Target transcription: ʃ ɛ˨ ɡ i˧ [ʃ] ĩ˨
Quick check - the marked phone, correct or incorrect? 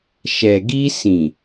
incorrect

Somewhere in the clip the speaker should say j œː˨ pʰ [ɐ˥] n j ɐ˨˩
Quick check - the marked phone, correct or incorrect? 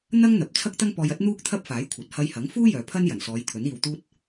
correct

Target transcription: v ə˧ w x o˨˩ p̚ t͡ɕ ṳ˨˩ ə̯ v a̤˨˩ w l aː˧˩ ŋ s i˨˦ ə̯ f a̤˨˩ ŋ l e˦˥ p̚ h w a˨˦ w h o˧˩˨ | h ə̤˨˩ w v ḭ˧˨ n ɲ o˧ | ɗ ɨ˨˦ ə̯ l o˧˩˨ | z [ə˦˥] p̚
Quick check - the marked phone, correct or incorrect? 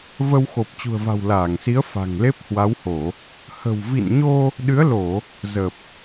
incorrect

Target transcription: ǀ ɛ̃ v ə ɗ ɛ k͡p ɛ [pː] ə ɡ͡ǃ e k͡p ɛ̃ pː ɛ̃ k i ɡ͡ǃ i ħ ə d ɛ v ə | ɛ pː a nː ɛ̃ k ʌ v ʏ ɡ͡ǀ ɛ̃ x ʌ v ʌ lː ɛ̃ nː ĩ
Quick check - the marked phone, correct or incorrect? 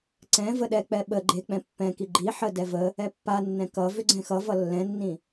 incorrect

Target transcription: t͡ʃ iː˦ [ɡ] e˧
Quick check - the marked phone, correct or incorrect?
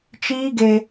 correct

